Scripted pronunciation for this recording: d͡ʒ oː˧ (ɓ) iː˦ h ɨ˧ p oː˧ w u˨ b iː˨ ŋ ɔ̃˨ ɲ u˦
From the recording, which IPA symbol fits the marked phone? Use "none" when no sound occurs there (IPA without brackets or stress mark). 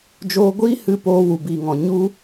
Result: ɡʷ